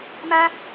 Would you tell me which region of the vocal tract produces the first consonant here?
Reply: lips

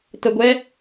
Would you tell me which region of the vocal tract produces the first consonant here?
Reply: tongue tip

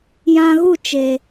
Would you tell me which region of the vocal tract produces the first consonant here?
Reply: palate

